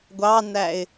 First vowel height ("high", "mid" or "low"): low